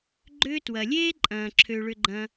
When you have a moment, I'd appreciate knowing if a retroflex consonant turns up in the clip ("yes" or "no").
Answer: yes